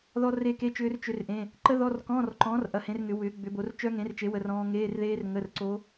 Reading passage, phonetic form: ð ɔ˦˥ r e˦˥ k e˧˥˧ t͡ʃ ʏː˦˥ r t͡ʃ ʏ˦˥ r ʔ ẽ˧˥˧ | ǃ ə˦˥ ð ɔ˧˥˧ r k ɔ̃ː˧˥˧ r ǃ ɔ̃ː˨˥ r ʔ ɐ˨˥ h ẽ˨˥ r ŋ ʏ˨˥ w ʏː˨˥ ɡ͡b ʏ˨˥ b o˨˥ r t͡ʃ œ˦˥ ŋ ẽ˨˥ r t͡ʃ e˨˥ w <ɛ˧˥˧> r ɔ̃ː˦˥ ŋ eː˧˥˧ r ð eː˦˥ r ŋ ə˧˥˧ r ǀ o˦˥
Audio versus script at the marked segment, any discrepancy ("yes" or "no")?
yes